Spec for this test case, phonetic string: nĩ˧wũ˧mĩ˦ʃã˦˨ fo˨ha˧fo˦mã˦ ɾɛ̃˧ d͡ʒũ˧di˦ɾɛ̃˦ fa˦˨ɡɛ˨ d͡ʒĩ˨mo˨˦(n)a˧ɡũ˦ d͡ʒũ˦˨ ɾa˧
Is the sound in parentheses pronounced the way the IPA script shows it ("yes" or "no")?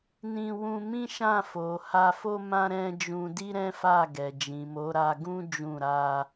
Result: no